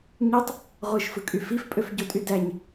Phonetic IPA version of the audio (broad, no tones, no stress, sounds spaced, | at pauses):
ɲ y tˤ | ʁʷ ɯ ʃ f ɯ kʼ y f i f pʼ ø f ɟ o tʼ y d æ ɲ